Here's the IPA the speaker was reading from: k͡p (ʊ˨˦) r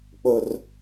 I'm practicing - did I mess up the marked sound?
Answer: yes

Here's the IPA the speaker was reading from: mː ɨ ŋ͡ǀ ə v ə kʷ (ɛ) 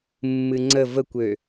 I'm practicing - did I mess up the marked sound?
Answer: yes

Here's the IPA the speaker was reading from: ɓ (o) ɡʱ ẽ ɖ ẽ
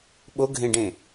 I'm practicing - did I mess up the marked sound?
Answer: no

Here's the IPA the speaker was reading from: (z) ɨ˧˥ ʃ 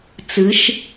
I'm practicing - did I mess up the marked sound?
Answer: yes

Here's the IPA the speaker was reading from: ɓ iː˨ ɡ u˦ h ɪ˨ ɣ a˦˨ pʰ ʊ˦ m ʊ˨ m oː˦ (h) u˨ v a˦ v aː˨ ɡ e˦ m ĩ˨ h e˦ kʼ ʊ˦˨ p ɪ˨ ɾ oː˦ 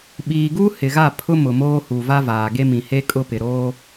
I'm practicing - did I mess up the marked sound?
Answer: no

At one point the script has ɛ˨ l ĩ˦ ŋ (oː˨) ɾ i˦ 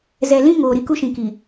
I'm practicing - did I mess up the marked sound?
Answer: no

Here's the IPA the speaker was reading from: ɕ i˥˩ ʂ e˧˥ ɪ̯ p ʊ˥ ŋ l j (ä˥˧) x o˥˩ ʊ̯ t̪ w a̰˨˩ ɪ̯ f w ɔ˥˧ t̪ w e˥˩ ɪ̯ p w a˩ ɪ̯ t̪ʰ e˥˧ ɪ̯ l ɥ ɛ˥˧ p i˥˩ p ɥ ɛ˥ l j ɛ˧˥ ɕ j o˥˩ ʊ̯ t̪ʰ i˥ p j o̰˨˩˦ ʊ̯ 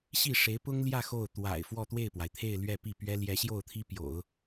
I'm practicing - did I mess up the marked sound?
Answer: no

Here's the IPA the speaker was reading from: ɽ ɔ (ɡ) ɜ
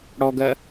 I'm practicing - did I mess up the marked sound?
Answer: no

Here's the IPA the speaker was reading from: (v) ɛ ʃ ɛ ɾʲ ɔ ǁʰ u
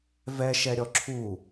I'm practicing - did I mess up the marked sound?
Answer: no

